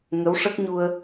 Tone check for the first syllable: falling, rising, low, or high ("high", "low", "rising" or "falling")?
rising